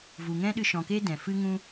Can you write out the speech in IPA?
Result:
v u˨ ŋ ɛ̃˦ ɗ ɨ˧ ʃ ɔ̃˨ k eː˦ d ɛ̃˨ f ɨ˦ ŋ ũ˦

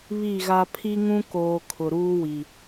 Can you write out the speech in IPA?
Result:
β i˦˨ ɣ a˦ pʰ i˦ ŋ ũ˦ k oː˨ kʰ ʊ˨ ɾ uː˦ w i˨

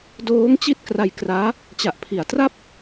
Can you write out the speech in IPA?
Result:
d oː˦˥ ŋ t͡ɕ i˥˩ t̚ k r a˧ j k r aː˦˥ | t͡ɕ a˨˩ ʔ pʰ i˩˦ a̯ t r a˥˩ p̚

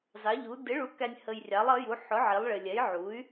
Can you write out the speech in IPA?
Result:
z ɑ˨˥ ʎ u˨˥ d ɪ˨˥ ɭ u˨˥ k æ˧ nʲ h ə˧ j rʲ ɑ˨˥ lˠ ʌ˨˥ j u˨˥ ħ ʊ˨˥ ʕ i˨˥ lˠ ɭ ɪ˧ lʲ ɛ˨˥ j ʕ u˨˥ y̯

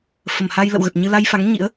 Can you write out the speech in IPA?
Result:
f ə˧˩ m h a˧ j l ə̰˧˨ w ɣ ə˨˩ t̚ ɲ ɨ˧ l a˧ j f a˨˦ ŋ ɲ ḭ˧˥ ə̯

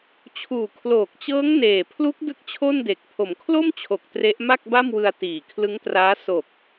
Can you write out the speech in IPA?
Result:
t͡ɕʰ uː˨˩ kʰ l oː˨˩ k̚ t͡ɕ ɤː˦˥ ŋ n eː˨˩ pʰ l u˦˥ k̚ d ɯ˥˩ k̚ t͡ɕʰ o˥˩ n d e˨˩ k̚ pʰ o˩˦ m kʰ l o˥˩ m t͡ɕʰ o˨˩ k̚ t r e˦˥ ʔ m a˥˩ k̚ b a˥˩ m w ɯ˧ a̯ t iː˨˩ kʰ l ɯ˦˥ ŋ t r aː˦˥ s o˨˩ k̚

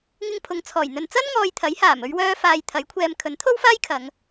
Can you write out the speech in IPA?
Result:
ŋ ɪ˧ ŋ pʰ ʊ˨ ŋ t͡sʰ ɔː˨˩ j n̪ ɵ˨ n t͡s ɐ˥ n ŋ ɔː˨ j t̪ʰ ɐ˨˥ j h aː˨˩ m ɵ˧ ɥ w œː˧ f aː˨ j t̪ʰ ɐ˨˥ j kʷʰ ɛː˧ m kʰ ɵ˨˥ n t̪ʰ o˥ w f aː˥ j kʰ ɐ˨˧ ŋ

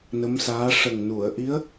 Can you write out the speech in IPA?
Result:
n ə˧˥ m s aː˧˥ ʂ ə˨˩ ŋ n u˨˩˨ ə̯ ʔ i˧˥ ə̯

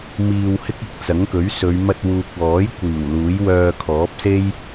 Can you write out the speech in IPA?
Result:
m iː˧ w h ɪ˥ k̚ ɐ˧ k̚ t͡s ɐ˨˥ ŋ k ɵ˨˥ ɥ s ɵ˨˧ ɥ m ɐ˧ t̚ w uː˨ k̚ w ɔː˨˥ j kʷ iː˨˩ w l uː˨˥ j w œː˧ kʰ ɔː˨˥ p̚ s e˥ j

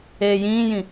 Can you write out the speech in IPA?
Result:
eː j ĩː j ĩ

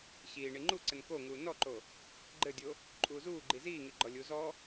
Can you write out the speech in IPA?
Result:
ɕ iː ɳ i ŋ͡ǃ u ǀ ɘ n k o ŋ uː n ɔ ǃ o | ɡ͡ǃ ɘ dʲ o | ǃʼ uː z uː ɡ͡ǃ i z iː ŋ i ɡ͡ǃ ɔ lʲ u z ɔ

